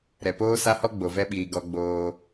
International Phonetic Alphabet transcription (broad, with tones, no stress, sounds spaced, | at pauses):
ɾ ɛ˨ p oː˦ s a˦ h ɔ˦ ɡ͡b o˨ v ɛ˦ ɓ iː˨ ɡ ɔ˦ ɡ͡b oː˦